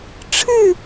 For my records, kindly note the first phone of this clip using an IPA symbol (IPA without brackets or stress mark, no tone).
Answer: ʈ͡ʂʰ